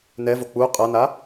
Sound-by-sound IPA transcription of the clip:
nɛvo k͡pu qʼʌna

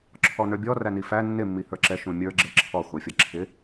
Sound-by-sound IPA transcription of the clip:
ǁʰɔnə˞bʲɔ rænifæ nːɪ mːihə˞ǁɛ ʃũmʲə˞ ɡ͡ǁɛǁʰɔ χʷæfʲʌǁʰɪ

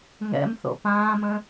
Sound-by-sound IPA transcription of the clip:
ŋɛ̰mθo̰ pãːmə̃

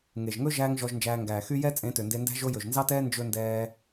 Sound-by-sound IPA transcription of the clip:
ŋe˨ʒŋɵ˦ ʒæː˦ŋʒɔ˧ʒnd͡ʒæː˧ ŋɡæː˨xy˦ jɛ˦ t͡sʼẽ˨˦tø˨nde˧ndæ̤˦ ʒo˧ jɵ˨ʒnzɑ˦tɛː˦ nd͡ʒɵ˧ndɛː˧

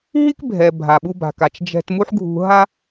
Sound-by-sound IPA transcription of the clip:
ɦi˥kbʱɛ˩ bʱa˩ɓu˧ba̤˩ka˩t͡ʃ d͡ʒɛ̤˧t mu˥ħɡʱṳ˧ ɦa˥

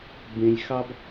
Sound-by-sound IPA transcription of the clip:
bẽ˧lʲxɑ˦b

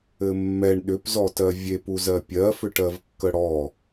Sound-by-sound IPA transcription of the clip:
ɘmːɛɳ ɗʏpzɔtɜ vʲep uzɜpʲɜfʏ ʈɜvkːəɽɔ

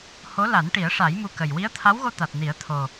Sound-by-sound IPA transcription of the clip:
ho˧˥la˨˩˦nʈi˨˩˦ə̯ʂa˨˩˦j mu˧kə˨˩j wi˧˥ə̯t̪ʰa˧˥wɣo˧ t̪a˨˩t̚ni˨˩˦ə̯ t̪ʰo˨˩

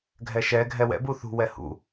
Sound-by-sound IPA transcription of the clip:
ɡʱɛʃɛ ɡʱɛwɛ̰ buθṳ wɛhṵ

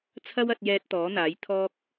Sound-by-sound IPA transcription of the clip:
t͡sʰɐ˥wɐ˧t̚jɛː˧t̚ t̪ɔː˨˥n̪aː˨˥jt̪ʰɔː˥k̚

